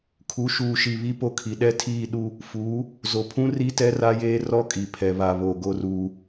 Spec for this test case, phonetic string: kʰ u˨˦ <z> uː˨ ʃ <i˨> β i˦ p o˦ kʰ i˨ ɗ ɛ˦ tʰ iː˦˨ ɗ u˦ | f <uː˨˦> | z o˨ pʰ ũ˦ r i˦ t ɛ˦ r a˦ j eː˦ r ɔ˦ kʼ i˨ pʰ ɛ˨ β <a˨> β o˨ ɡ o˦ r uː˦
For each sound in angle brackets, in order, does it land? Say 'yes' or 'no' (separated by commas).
no, yes, yes, yes